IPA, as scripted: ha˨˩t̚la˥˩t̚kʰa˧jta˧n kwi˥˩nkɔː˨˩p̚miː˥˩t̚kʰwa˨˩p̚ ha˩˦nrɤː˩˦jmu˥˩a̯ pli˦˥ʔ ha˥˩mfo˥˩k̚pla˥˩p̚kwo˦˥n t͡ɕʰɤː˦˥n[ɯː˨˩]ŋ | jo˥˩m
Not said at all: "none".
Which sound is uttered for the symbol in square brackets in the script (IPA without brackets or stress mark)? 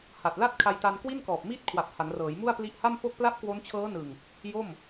ɯ˨˩